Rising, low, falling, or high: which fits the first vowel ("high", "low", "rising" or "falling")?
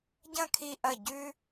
falling